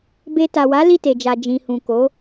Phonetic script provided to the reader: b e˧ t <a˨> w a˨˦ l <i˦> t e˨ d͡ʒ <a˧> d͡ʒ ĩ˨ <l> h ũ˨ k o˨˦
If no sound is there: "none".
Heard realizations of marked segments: a˨, i˦˨, a˨, none

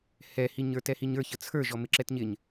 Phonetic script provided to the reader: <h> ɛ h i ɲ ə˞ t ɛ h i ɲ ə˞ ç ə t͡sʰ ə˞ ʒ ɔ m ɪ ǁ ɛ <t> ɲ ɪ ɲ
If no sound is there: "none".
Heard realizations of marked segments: h, t

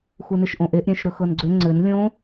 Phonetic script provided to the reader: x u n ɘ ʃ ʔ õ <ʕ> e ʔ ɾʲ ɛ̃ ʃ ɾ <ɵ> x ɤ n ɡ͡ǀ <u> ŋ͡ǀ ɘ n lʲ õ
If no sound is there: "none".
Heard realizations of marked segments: ʔ, ɵ, ʏ

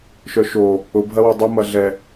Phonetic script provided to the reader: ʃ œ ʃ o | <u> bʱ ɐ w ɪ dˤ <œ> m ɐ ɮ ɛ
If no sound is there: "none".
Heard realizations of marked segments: ʊ, œ

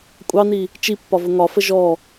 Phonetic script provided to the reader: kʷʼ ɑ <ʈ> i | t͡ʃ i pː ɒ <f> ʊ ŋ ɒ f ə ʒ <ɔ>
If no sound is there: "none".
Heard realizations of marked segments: n, v, ɔ

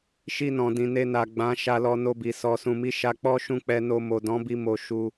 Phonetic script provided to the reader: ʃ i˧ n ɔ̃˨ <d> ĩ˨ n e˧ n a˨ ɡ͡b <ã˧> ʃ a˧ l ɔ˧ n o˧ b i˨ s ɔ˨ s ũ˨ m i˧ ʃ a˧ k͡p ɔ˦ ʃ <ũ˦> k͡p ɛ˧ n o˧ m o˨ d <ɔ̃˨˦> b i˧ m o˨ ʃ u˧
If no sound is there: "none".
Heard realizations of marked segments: d, ã˨˦, ũ˦˨, ɔ̃˨˦

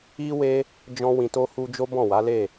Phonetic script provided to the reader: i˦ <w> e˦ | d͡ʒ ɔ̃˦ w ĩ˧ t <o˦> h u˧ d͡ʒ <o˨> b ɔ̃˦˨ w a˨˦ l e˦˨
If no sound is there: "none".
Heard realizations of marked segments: w, o˦, o˦

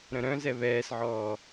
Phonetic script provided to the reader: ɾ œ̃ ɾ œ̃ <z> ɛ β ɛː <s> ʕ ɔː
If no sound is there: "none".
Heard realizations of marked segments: z, s

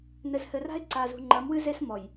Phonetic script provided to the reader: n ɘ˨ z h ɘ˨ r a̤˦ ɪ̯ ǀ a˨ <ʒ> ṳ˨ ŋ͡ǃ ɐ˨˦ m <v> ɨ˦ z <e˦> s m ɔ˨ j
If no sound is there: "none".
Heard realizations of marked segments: z, w, e˦

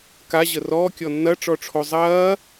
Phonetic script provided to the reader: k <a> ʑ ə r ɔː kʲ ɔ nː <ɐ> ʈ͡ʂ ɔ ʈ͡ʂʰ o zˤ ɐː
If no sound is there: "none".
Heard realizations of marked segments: a, ɐ

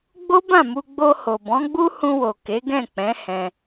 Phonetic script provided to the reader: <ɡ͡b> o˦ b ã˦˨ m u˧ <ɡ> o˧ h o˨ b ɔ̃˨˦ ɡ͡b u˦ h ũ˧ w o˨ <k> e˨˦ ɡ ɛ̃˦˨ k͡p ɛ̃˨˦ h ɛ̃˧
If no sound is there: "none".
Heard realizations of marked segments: ɡ͡b, ɡ͡b, k

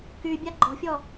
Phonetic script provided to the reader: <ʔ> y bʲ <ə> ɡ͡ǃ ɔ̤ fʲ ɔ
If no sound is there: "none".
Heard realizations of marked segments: k, a

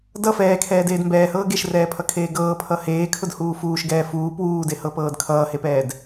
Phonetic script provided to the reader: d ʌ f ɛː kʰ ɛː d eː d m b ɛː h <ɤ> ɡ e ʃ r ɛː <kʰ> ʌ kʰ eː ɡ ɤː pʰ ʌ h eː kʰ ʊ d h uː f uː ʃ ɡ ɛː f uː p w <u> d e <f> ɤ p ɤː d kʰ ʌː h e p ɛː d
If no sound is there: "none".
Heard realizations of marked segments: ɤː, pʰ, uː, h

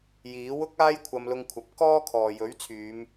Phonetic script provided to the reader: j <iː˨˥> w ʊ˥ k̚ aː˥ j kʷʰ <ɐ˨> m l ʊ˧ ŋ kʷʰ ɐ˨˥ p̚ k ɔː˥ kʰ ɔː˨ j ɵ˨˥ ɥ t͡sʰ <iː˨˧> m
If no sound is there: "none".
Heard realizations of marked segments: iː˨˥, ɐ˧, yː˨˧

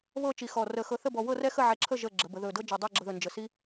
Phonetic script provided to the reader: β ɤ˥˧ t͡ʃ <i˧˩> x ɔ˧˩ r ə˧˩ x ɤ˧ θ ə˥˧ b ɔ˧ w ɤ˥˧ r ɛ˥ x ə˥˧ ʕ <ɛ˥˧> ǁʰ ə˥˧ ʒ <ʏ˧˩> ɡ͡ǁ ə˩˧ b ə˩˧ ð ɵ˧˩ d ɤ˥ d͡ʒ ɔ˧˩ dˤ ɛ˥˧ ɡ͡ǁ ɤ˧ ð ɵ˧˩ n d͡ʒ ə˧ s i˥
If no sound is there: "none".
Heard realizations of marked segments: i˧˩, ɛ˧, ə˧˩

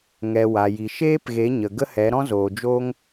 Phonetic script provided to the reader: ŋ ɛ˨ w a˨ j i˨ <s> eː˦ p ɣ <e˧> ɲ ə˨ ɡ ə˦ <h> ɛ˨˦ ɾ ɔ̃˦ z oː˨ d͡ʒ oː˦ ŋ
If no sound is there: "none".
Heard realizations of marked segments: ʃ, e˨˦, h

